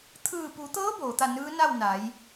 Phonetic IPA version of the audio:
t̪ʰ ɯː˧˩ p u˩˧ t̪ ɤː˧˥ b oː˩˧ t̪ a˥˨ n ɯː˧˥ n a˥˨ w n a˩˧ j

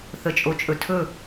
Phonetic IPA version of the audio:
θ ə t͡ʃʼ o t͡ʃʼ ɵ tʰ ɵ

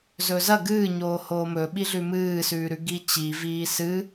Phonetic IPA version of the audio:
z ɵ z ɐ ɡ ɨː ɲ oː h oː m ɵ ɓ i ɮ ʉ m ɨː s ʉː ɾ ʉ ɡ i t͡ɕ i v iː s ɨ

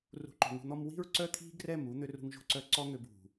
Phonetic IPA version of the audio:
r ṳ˨ ǃ o̤˨ ŋ ṳ˨ n̪ ɔ˧ m w i̤˦ ɹ ǀ œ˦ t̪ʰ i̤˦ ɡ r ɛ˦˨ m u˧ n̪ ø˧ r ṳ˧ ŋ ʒ o̤˧ ǀ œ˦ ǀ ɔ˦ ŋ ø˧ b ṳ˨

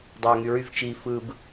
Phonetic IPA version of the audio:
dˤ ɑ ʊ̯ ŋ y ɹ y v t͡ʃ i f ɯ b

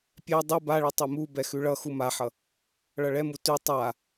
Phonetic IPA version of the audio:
pʲ ɛ dˤ u b a ɭ i tˤ u m u b ɛ x ʉ ɭ ʌ x u m a ħ ʌ | ɭ ʌ ɭ ɛ m u t ʉ tˤ a

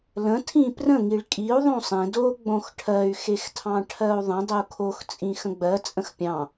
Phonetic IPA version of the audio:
l ə̃ tʰ ĩ p r ə̃ ŋ i ɭ kʼ i u̯ ðˤ õ sˤ ẽ d o ɡ͡b õ x ʈʰ ɜ y̯ x e x tʰ ɑ̃ ʈʰ ɜ u̯ ðˤ ə̃ dˤ ə u̯ kʰ o x t͡sʼ ĩ x ə̃ ɡ͡b ɜ t͡sʼ ə̃ x pʲ ɑ̃

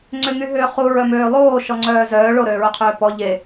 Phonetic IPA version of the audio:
ŋ͡ǀ ʏ ŋ y ɦ ʏː χ u ɹ œ m øː lˠ oː ʃ ɔ ŋ͡ǀ œː z œː ɭ o ɾ øː ɹ œ qʰ øː p ɔ ʎ e

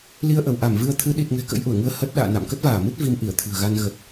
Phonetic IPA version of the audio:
l i˧ ə̯ ʔ ə˧˩ w ʔ a˧˩ m v ɨ˧ ə̯ t̪ʰ ɨ˨˦ ɗ i˨˩ t̚ ŋ ɛ̤˨˩ k ə̰˧˥ j ʔ u˧˩ ə̯ ŋ ɨ˧ ə̯ h ə˦˥ t̚ ɗ a̰ː˧˨ n a̰˧˨ m k ə˦˥ t̚ v aː˧˩ m ɨ˦˥ t̚ v i˧ m ʔ i˧˩ ə̯ t̪ʰ ɨ̤˨˩ ə̯ ɣ a˧ n ɣ ə˨˩ t̚

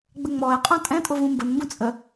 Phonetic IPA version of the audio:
ɡ͡b ə ŋ͡m ɔ ɪ̯ qʼ ɔ̃ tʼ ɛ̃ tʼ ʊ v ũ m b ə n m b ũ t͡sʼ ə

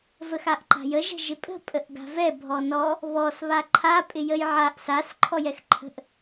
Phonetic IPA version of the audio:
v ə x a ʔ ǃ a̤ j ə ʒ ɛ̤ ʒ ɪ pʼ ə̤ pʼ ə ʔ ɡ a̤ v ɛ bʱ ɔ n ɔ | β ɔ s β a ǃʰ a pʼ ɪ j ə j ʕ a ʔ s a s ǃʰ ɔ j ɛ x ǃʰ ə̤ ʔ

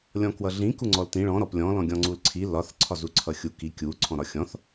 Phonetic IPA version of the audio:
lʲ ɔ̃ k w ʌ ɮ ĩ k u ŋ͡ǀ ɔ l t ĩ ɭ ɔ̃ ɾ ɔ p lʲ ɔ̃ l ɔ̃ ɡʲ ɔ̃ ŋ͡ǀ u l ǀʰ i l ɒ θ ǀʰ ɒ z u ǀʰ ʌ xʲ u k i kʲ u ǀʰ ɔ̃ ɾ ɒ xʲ ɔ̃ θ

